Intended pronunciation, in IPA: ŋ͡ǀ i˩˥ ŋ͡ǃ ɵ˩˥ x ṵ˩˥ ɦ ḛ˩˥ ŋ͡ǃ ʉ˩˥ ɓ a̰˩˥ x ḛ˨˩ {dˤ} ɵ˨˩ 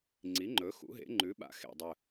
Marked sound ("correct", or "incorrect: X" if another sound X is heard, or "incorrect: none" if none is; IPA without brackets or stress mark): correct